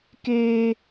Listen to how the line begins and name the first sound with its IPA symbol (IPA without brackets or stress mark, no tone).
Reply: k